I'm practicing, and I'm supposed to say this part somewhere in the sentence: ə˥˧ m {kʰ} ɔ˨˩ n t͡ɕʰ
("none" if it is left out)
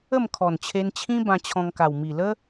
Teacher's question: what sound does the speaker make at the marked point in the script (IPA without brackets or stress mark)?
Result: kʰ